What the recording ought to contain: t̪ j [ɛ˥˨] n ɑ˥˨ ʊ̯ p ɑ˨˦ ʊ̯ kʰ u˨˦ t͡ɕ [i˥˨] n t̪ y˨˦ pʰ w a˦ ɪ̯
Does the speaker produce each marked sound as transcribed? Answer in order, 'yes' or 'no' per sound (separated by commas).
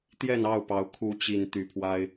yes, no